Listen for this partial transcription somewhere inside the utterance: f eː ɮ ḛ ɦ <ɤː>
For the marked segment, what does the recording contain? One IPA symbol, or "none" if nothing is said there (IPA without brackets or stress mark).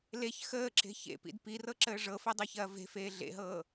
ɤː